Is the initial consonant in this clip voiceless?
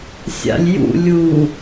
yes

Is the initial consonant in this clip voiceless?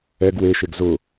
no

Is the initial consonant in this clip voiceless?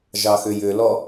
no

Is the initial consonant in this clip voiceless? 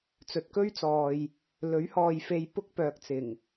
yes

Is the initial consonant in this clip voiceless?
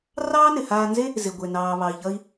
no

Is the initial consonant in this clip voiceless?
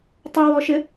yes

